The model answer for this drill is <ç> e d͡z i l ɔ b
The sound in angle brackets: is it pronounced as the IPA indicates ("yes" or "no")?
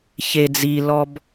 yes